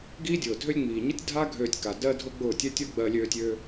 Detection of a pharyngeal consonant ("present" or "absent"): absent